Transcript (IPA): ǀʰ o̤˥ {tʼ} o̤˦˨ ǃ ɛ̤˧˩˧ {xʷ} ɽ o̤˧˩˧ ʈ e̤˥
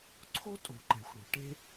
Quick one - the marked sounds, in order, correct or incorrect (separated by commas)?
correct, correct